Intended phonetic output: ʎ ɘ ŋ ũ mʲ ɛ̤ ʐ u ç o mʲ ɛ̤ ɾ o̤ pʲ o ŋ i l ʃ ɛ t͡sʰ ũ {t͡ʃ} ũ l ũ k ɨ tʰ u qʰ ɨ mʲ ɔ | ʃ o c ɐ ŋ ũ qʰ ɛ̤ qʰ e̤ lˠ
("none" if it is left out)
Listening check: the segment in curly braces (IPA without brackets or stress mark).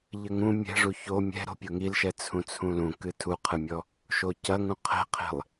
t͡sʰ